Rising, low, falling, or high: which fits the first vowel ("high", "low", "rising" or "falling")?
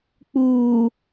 low